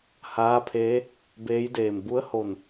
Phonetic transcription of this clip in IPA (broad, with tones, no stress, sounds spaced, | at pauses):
h aː˧˥ pʰ eː˧˥ | b eː˧˥ j d eː˧˩ m b u˧˥ ə̯ h o˧˩ n